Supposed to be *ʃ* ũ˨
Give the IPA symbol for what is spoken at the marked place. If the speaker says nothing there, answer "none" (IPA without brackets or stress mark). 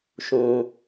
ʃ